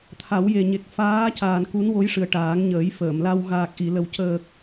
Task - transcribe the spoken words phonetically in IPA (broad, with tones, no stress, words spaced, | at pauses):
t̪ʰa˨˩˦wje˨˩ɲe˨˩k̚ faː˧˥caː˨˩n ku˧˥nwo˧˥jʂɨ˨˩ə̯ ʈaː˨˩˦ŋɲəː˨˩˦jfəː˨˩˨mla˧w ɣaː˨˩k̚ʔi˨˩˨lə˨˩w cəː˨˩k̚